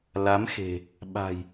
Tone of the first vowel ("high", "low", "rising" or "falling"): rising